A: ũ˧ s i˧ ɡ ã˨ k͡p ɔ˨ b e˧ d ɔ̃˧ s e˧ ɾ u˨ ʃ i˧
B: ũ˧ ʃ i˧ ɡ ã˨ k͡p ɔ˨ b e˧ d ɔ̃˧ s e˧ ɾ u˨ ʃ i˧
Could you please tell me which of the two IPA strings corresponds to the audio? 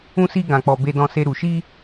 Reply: A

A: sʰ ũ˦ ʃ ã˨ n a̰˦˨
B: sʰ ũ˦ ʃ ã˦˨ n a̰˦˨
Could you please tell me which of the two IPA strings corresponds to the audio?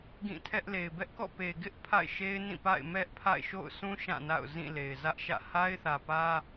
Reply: B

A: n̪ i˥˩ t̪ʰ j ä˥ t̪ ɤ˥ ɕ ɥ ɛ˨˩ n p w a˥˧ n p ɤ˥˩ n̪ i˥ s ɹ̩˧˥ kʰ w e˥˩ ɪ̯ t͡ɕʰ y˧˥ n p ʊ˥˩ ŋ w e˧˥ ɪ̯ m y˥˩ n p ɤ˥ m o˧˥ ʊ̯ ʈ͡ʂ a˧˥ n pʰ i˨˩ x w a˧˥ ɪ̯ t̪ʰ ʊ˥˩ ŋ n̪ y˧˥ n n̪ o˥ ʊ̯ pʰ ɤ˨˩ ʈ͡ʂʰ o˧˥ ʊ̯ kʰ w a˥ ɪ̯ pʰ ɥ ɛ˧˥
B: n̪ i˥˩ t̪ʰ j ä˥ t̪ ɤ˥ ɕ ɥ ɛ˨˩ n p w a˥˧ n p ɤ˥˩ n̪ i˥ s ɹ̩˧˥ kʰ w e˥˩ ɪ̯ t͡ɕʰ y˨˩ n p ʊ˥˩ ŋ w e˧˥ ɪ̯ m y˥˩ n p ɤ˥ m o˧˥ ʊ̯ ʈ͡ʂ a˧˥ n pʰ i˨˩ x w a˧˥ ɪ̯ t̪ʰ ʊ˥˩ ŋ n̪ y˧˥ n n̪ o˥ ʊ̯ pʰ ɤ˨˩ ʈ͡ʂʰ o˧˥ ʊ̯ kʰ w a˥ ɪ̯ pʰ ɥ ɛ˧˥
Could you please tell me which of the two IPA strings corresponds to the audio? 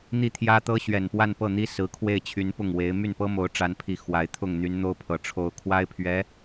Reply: A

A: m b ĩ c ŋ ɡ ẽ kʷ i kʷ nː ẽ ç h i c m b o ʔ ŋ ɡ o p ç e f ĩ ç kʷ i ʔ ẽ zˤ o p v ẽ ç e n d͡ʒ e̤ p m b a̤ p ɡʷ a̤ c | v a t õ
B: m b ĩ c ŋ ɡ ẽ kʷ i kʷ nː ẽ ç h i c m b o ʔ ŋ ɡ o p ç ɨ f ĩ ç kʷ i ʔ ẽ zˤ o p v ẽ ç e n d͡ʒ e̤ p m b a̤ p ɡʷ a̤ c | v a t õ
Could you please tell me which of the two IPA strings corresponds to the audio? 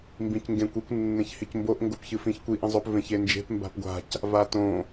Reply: B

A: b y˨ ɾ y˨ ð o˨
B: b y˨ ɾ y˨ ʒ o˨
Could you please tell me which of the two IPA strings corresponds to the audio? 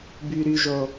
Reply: B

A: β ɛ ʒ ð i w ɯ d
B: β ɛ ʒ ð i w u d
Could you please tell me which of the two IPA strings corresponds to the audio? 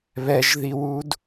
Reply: B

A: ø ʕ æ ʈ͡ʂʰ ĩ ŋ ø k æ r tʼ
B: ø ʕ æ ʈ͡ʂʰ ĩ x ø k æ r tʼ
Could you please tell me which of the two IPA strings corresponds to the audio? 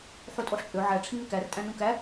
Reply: A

